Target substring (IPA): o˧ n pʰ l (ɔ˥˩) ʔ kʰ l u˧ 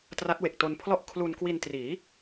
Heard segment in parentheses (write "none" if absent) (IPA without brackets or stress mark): ɔ˥˩